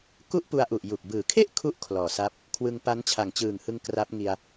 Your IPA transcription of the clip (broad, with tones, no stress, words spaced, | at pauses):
ku˥˩ʔpu˧a̯ʔu˨˩ʔ ju˨˩k̚ bɯː˩˦kʰe˥˩ʔ kʰu˥˩ʔ kʰlɔː˨˩sa˦˥p̚ | kʰwɯ˧ŋpa˦˥n t͡ɕʰa˨˩ŋt͡ɕɯː˨˩ŋhɯ˧ŋ kra˦˥p̚ŋi˧a̯